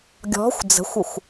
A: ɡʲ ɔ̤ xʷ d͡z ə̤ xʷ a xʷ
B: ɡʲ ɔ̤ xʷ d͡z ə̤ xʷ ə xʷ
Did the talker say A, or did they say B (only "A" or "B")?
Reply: B